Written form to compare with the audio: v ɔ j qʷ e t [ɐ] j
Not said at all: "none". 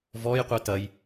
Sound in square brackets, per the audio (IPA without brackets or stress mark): ɐ